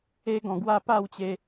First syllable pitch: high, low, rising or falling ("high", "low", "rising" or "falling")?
high